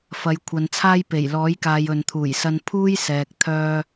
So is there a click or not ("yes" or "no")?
no